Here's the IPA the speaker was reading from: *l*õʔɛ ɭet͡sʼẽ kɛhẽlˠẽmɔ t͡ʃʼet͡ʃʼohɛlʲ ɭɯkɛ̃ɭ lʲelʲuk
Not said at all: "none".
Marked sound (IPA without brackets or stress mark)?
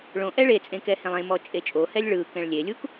ɭ